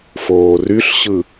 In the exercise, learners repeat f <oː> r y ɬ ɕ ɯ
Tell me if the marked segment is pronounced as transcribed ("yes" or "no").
yes